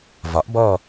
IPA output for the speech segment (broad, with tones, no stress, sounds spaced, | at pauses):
v ɒ˩˥ ʔ b ɔ˦˨